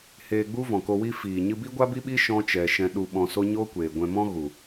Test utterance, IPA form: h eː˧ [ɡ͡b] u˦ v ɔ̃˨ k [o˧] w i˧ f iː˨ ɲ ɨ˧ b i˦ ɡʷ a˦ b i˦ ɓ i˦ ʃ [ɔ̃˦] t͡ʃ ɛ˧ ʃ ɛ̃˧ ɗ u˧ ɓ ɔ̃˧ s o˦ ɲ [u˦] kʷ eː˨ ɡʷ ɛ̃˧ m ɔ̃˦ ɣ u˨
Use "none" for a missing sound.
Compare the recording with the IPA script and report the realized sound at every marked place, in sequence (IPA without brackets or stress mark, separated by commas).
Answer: ɡ͡b, o˧, ɔ̃˦, o˦